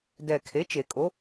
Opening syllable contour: low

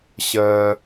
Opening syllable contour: high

